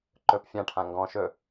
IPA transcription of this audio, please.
ǃ ɵ p fʲ ã ʈʰ ã ŋ ɡ ɔ̃ ʃ ɵ

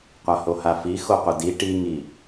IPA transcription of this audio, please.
qʷ a h o h a f i x o qʷ ə d i ʈ i ŋ i

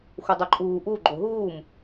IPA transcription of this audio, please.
xʷ ʌ dˤ o ǃʼ uː ʔ u ɡ͡ǃ o ɦ uː m

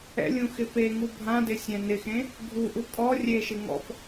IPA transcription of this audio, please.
ɛ̰ lʲ ũ x ɪ p e ŋ u bʱ ã d ɪ sʲ ɛ̃ n ɪ x ẽ | ɡʱ u ʔ u kʼ ɔ rʲ e ʃ ɪ ŋ ɔ̰ p

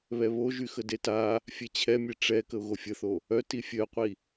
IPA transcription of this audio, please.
β ɛ β o ʒ y x ə d e t a | fʲ ɛ t͡ɕʰ ɛ mʲ ɛ ʈ͡ʂ ɛ k ə ʊ̯ ɣ o fʲ ə θ o | œ t i fʲ œ qʷ i

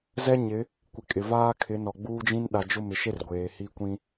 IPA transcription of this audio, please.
z ɛ˦ ɲ ɪ˨˦ | kʷ ɪ˨ kʼ ɪ˨ v aː˦ kʰ ɪ˨˦ n ɔ˨ ɡ͡b uː˦ d͡ʒ ĩ˦ n ɗ a˨ d͡ʒ ʊ˦˨ m ɪ˨ ʃ e˦ r ɡʷ eː˨ h i˦ kʷ ĩ˦

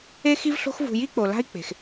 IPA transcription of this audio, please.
e˦ x i˦ v ɬ o̤˦ x v ṳ˧ j i˦ k͡p o˨ l a̤˦ i̯ k͡p e̤˨ x

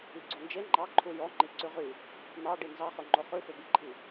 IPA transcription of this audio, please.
i ɡ͡ǀ o n d͡ʒ e ŋ͡ǃ ɑ ǃʰ u j ɔ ŋ͡ǃ i ǀ ʉ ʁ y | n̪ ɑ ɖ i n z ɑ χ ɵ ŋ͡ǃ o χ ʉ f ø b i ǃʰ i

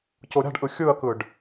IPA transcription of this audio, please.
c o ɾʲ a̤ ɖ ʔ ɯ xʲ ɯ ɐ̯ k ɯ ɖ

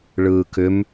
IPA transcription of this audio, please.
ɭ ɯː k ʏ m

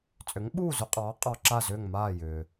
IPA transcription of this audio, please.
t͡sʼ ʏ˩˥ ŋ ɓ uː˥˩ z ʏ˧ qʼ ɑː˩˥ qʼ ɑ˧ ǁ a˥˩ z ʏː˥˩ ŋ m aː˥˩ j ʏː˩

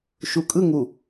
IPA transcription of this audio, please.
ʃ u kʼ ɯ ŋ u

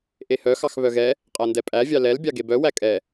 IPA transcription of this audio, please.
ʔ e h œ x ɑ x β œ ɣ ɛ | qʼ ɛ n d ɛ pʼ æ vʲ ɑ l ɛ l bʲ ɑ ɡ e b œ w æ kʼ ɛ

